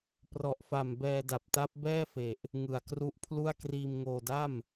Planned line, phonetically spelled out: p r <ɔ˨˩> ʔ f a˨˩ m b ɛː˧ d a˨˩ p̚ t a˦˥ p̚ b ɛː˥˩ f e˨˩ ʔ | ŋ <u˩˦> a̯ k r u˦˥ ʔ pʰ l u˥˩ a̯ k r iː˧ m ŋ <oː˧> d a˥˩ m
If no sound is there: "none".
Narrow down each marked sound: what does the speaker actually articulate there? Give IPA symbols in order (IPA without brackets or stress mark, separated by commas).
ɔ˨˩, ɯ˩˦, oː˧